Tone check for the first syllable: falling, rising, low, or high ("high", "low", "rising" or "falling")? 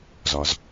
low